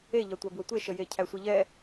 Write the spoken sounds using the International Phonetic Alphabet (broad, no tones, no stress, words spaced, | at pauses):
eʎɑtʷæ bwətʷeʃəje cʰæsʷiʎɛ